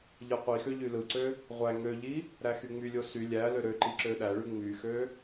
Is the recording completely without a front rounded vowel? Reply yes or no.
no